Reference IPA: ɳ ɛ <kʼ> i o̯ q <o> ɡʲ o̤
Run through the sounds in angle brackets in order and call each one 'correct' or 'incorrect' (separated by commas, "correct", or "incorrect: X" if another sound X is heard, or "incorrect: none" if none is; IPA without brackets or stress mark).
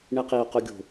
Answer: incorrect: q, correct